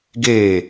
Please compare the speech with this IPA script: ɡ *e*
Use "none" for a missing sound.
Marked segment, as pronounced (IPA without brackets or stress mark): e